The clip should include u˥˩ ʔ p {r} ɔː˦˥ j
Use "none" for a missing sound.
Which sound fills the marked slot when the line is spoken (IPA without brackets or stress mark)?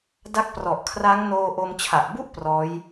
r